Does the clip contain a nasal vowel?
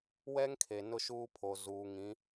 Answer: yes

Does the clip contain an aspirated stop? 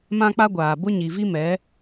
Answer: no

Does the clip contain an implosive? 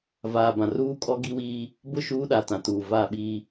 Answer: yes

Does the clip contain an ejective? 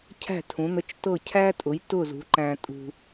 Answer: yes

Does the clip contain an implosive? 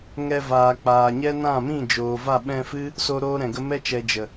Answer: yes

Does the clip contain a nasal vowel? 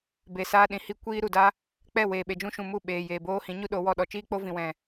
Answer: yes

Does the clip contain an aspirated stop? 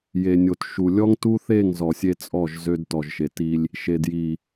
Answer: no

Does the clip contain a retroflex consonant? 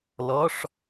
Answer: yes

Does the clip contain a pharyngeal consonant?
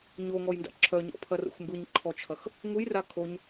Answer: no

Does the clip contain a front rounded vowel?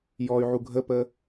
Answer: yes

